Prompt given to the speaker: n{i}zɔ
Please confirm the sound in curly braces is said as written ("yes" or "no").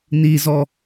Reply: yes